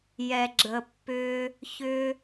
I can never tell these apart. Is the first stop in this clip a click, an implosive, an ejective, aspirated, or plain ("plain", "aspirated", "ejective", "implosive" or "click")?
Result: click